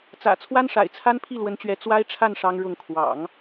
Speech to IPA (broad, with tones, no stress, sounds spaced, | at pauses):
t͡s ä̰˨˩ t͡sʰ w a˥ n ʂ a̰˨˩ ɪ̯ t͡sʰ a˥ n pʰ i˥˩ l w ə˧˥ n t͡ɕ ɥ ɛ˧˥ t͡s w a˥ ɪ̯ ʈ͡ʂʰ a˥˩ n ʂ ɑ˥ ŋ ɻ ʊ˥˩ ŋ kʰ w ɑ̰˨˩˦ ŋ